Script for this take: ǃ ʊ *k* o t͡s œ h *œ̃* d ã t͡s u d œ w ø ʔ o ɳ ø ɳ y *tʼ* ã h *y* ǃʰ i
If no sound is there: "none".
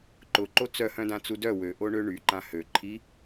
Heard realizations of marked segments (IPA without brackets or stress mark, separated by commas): ǃ, œ̃, ǃ, ø